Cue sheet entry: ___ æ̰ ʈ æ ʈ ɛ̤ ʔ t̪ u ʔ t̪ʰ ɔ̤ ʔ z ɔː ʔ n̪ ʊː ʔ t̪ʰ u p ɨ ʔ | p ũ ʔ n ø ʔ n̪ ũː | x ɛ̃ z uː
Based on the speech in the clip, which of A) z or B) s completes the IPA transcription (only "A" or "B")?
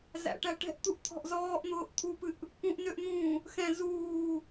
A